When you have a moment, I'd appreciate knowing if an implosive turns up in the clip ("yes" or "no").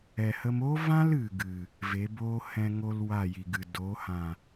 no